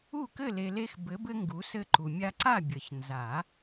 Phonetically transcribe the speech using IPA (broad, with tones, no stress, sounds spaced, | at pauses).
u˥˨ k ɘ˥˨ l e˨ l e˦ x b ɘ˨˦ b ɘ˦ ŋ ɡ u˨˦ s ɘ˦ ǃ u˨ mʲ a˦ ǀ a˥˨ bʲ ə˨˩˦ ç n z a˨˩˦